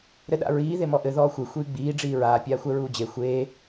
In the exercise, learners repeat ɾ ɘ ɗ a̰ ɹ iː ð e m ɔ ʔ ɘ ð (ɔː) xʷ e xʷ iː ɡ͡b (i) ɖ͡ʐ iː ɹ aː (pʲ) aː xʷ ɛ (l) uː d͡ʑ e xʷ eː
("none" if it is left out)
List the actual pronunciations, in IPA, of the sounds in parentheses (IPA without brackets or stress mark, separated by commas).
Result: ɔː, iː, pʲ, ɹ